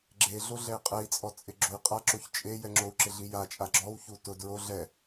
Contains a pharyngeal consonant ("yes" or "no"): no